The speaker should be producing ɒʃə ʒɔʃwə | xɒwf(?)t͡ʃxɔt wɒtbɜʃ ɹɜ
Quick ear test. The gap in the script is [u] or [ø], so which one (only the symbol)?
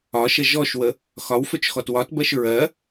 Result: ø